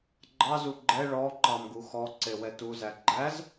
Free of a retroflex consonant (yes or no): no